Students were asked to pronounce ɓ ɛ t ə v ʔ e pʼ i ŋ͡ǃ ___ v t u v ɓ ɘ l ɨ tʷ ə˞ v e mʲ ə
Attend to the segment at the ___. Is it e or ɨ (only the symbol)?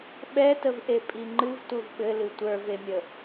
ɨ